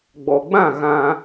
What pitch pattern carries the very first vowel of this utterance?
low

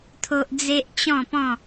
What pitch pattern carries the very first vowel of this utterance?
high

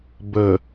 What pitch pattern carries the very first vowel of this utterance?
low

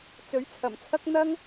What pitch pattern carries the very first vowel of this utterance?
rising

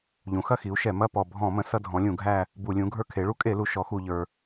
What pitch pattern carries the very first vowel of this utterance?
rising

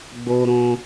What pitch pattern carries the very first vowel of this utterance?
high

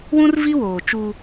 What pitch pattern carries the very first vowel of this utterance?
high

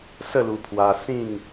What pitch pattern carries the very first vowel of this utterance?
falling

